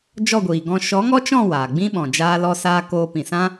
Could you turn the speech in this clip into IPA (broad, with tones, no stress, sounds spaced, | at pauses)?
d͡ʒ ɔ˦˨ ɡʷ iː˨ ɡ ɔ̃˧ ʃ ɔ˨˦ ŋ ɔ˦ t͡ʃ ɔ̃˦˨ w aː˨ ɡ͡b ĩ˦ ɓ ɔ̃˨ d͡ʒ aː˦ l ɔ˦ s aː˦ k oː˧ p ĩ˨ s ã˦